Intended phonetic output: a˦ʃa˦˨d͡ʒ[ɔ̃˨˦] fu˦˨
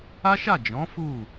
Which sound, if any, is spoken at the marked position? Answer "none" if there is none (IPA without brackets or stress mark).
ɔ̃˨˦